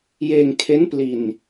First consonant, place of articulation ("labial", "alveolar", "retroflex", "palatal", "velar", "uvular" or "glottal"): palatal